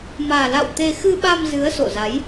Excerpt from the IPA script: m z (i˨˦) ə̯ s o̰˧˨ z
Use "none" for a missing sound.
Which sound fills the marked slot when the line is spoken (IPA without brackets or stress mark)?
ɨ˨˦